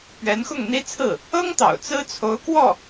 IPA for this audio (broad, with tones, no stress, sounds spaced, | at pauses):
p ɥ ɛ˧˥ n x ʊ˥˩ ŋ n̪ i˥ t͡sʰ ɹ̩˥˩ | ɤ˥ ŋ t̪ ɑ̰˨˩ ʊ̯ t͡s ɹ̩˥ t͡sʰ o˧˥ ʊ̯ k w ɔ˥˩